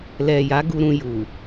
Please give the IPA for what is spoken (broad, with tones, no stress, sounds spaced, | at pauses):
l ɛ˨ j a˨˦ ɡ u˧ ɾ ũ˧ j u˨